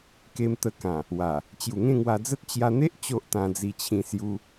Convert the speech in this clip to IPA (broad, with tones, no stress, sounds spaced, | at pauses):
k e˧ m t̪ ə˧ k ã˨˩ | w a˨˩ | t͡ɕ j u˨˩ ŋ ẽ˥˧ ŋ w a˧ d͡z ə˦ t̚ t͡ɕ j a˧ n̪ e˦ ʔ t͡ɕ o˦ ʔ t̪ ã˧ d͡z i˧ t͡ɕʰ ĩ˧ s j u˧